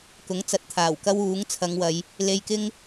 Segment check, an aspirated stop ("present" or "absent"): present